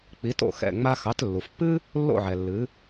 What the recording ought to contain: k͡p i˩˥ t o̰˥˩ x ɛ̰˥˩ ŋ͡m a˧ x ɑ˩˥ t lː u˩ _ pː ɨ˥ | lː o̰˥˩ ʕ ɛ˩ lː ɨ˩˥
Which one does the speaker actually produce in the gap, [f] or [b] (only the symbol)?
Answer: f